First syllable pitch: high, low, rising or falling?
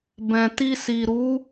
low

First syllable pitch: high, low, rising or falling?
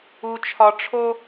low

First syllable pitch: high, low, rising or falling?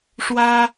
high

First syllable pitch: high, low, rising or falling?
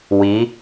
rising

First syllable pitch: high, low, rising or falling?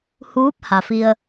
rising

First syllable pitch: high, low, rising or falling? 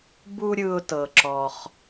high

